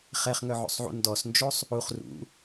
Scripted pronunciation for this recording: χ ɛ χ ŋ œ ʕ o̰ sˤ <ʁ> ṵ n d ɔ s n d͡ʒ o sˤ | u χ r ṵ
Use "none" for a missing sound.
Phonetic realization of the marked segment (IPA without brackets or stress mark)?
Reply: ʕ